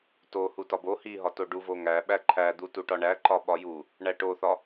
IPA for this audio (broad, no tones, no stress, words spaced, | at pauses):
to hutɒbo hiɦɒ toɖuvoŋæ ɓæǃʰæd̪u tuʈɒɳæ ǃɒɓɒju | ɳæʈoθɒ